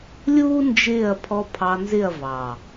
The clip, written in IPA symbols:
lʲuː˦nd͡ʒɪː˦˨ɐ̯ pʰɔ˧ pʰɑ˧nzɪ˦˨ɐ̯vɑ˨

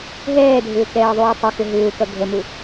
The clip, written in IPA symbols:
ɦɛːdʱʏː kɛːðˤuːtˤɛxʏ ɦʏːkʌ ɡʱəmu

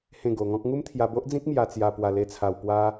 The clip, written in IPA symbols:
hẽ˥˧ɡo˧ŋɔ̃˦k̚ ŋu˦mt̪ʰja˧bo˦ʔd͡zĩ˦k̚ mja˧t͡sja˧ pwa˧le˧t͡sʰa˧w pwa˦

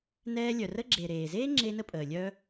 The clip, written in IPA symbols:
nɛː˧lʲœ˩ rə˧ɡ͡ǁeː˩ ɾeː˩zeː˥ ŋ͡ǁe˧nə˧pʼəː˩ lʲœ˧

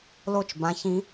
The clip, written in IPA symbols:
lo˥˨t͡ʃbã˦˥çĩ˦˥

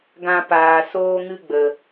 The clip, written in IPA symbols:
ɡã˧paː˨ soː˧ŋɨ˧ɡ͡bə˨

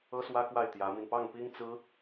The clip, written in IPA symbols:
ɤ˥swä˥kwa˥˩ɪ̯ t̪jä˧˥mi˧n pɑ˥˩ŋpi˥ŋt͡sɹ̩˥

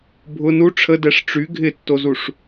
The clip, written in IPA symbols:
bʱʊ nu ʈ͡ʂʰədɛʂ ʈ͡ʂy ɡʱɪtːozuʂ

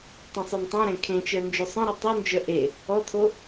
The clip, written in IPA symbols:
tˤœ̃sˤontˤœ̃ɾẽ kʰẽt͡ʃœ nd͡ʒʉsˤœ̃ɾu tˤund͡ʒœ ʔe | ɔtʰo

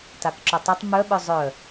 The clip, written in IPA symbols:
takǁɵtˤitˤ mœɓœ zˤœ

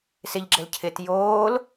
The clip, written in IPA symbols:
sɪʎɡ͡ǁɘl cʰɪt joːl

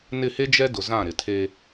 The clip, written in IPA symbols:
nɪ˦˨he˦d͡ʒɛ˦dʊ˨ zã˦˨ɾɪ˨tʰe˦

